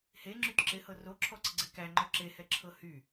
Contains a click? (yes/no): yes